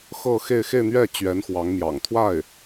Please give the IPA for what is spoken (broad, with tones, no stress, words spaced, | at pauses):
xɤ˥˧xe˥˧ɪ̯ xe˥˧ɪ̯n̪ɥɛ˥˩t͡ɕɥɛ˧˥n xwɑ˧˥ŋmjɑ̰˨˩ŋt̪ʰwa˥˩ɪ̯